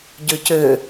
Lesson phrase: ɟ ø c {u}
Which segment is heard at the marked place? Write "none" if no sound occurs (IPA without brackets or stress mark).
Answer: ø